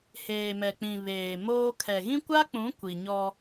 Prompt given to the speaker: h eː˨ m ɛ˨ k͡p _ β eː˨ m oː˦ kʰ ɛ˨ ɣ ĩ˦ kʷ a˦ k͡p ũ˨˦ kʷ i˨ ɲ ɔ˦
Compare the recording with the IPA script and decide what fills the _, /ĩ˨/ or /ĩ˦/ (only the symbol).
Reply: ĩ˨